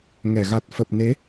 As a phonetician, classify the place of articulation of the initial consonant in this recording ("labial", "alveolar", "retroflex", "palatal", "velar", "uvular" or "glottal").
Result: velar